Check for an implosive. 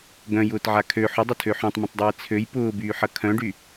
absent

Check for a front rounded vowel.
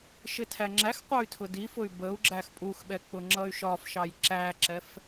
present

